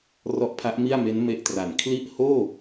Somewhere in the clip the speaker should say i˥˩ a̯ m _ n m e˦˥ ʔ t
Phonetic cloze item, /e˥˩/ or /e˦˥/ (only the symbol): e˦˥